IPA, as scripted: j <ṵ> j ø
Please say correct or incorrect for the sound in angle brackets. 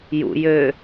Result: correct